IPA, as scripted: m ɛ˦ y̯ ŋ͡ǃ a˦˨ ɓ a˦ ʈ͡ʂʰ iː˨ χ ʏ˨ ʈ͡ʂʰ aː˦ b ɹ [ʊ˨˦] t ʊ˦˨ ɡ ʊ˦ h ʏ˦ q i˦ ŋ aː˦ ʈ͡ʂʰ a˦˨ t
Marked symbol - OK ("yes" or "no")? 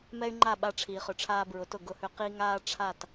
yes